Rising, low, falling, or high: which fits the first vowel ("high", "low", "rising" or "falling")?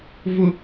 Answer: high